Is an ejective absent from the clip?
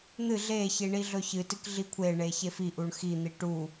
yes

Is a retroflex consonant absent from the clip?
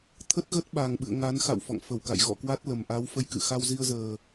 yes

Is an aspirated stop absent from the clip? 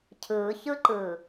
no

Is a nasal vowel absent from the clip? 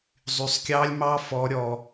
yes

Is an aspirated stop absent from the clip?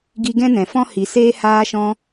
yes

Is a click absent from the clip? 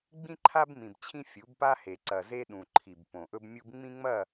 no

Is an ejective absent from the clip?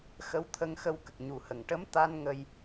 yes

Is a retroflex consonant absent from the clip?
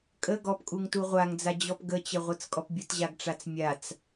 no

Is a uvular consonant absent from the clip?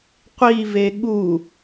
no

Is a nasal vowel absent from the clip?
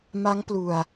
yes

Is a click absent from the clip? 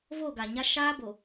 yes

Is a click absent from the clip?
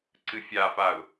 no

